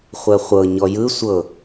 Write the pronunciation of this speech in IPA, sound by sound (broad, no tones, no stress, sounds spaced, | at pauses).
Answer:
χʷ ɛ χʷ ɤ ɲ ɔ j ɯ sʷ ɤ